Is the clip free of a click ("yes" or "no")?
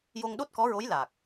yes